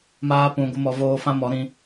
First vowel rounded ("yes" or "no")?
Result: no